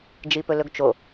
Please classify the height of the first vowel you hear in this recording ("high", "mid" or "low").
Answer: high